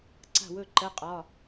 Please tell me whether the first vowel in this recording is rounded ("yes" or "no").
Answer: no